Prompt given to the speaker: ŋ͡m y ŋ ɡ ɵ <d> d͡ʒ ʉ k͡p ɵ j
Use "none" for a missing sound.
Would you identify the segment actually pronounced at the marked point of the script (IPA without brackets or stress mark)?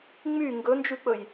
n